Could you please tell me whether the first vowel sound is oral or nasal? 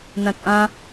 nasal